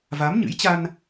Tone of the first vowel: rising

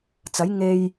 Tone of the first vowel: rising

